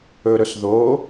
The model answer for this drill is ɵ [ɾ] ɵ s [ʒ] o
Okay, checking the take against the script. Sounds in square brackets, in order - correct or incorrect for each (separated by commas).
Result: correct, incorrect